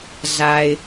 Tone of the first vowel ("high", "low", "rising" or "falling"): low